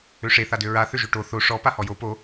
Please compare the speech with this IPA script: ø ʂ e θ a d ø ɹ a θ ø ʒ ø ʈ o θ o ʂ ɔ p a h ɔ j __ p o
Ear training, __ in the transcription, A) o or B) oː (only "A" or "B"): A